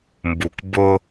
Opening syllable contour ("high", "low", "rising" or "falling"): low